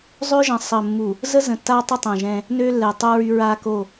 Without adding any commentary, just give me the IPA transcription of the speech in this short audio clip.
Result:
zˤ ø˦ ʒ ə̃˨˦ sˤ ə˨ mː u˨ | z ə˦ z ə̃˨ tː a˦ tˤ ə˦ tˤ ɛ̃˨ ʒ ɛ̃˦ | n ø˦ lː ɛ˨ tˤ u˦ ɹ y˦ ɹ a˦ k o˦˨

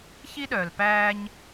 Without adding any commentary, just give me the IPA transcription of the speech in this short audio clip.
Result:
ç i˦ ɗ œː˩ l p æː˦ ɲ

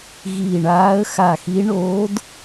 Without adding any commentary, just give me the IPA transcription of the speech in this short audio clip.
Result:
ɣ iː˧˩ ɳ aː˧˥ ə̯ x a˧˩ x i˧˥ ɳ o˧˥ d

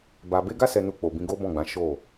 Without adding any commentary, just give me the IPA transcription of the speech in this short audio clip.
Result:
b a˧ b e˦ ɡ a˦ s ɛ˧ n u˧ k͡p o˨ b ĩ˧ ɡ o˦ b ɔ̃˦˨ ɡ͡b ã˨˦ ʃ o˦˨

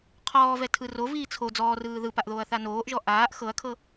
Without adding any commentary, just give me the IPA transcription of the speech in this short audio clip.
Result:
qʰ ɔː v ɛ tʰ ɯ r o v iː t͡sʰ o d͡z ɔː r ɯː ð ɯ p a ʔ ð oː ɐ̯ θ a n oː ʔ ʒ ɔ ʔ aː ʔ x ɤ ɐ̯ kʰ ɤ

